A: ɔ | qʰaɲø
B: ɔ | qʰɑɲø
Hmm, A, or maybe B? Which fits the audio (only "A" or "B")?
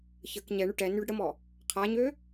A